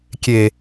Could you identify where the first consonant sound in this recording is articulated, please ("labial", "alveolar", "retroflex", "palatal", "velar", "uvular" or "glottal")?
velar